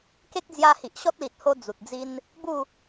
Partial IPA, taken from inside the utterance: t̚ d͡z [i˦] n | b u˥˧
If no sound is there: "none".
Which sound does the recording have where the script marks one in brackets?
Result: i˦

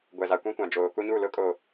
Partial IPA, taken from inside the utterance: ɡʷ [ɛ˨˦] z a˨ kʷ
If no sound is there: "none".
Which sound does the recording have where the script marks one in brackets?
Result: ɛ˨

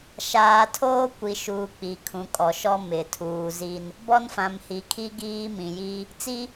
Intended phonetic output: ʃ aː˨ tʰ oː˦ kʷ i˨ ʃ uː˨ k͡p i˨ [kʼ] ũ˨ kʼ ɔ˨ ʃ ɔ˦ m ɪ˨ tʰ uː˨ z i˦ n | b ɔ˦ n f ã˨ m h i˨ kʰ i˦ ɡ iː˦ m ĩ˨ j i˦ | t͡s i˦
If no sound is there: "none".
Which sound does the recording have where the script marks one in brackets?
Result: kʰ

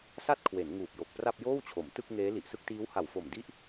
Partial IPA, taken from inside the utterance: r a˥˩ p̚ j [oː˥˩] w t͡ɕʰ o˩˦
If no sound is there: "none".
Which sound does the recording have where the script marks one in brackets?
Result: oː˥˩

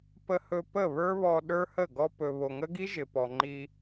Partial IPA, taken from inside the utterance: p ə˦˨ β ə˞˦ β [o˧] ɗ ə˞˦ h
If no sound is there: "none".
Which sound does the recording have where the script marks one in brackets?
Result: ɔ˧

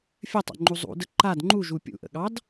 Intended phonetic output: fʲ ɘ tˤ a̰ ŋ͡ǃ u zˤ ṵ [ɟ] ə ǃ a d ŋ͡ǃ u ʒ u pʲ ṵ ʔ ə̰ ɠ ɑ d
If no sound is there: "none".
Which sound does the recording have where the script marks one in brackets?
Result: d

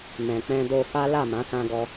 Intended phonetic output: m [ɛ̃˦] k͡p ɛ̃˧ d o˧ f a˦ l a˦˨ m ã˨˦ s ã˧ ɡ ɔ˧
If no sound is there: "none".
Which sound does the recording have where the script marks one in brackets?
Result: ɛ̃˨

